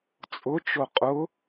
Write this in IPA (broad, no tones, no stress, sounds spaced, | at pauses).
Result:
t͡sʼ ʊ t͡ʃ o qʼ ʊ